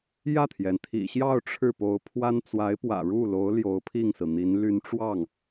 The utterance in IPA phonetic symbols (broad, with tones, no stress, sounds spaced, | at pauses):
j ä˥˩ t̪ʰ j ɛ˩ n t̪ʰ ḭ˨˩ ɕ j ɑ˥˧ ʊ̯ ʈ͡ʂʰ ɻ̩˥˩ p o˧˥ ʊ̯ pʰ w a˥ n t͡s w a˧˥ ɪ̯ p w ä̰˨˩ ɻ u˥˩ l o˧˥ ʊ̯ l j o˧˥ ʊ̯ pʰ i˥˩ ŋ s ɹ̩˩ n̪ i˧˥ n l y˧˥ n ʈ͡ʂ w ɑ˥˩ ŋ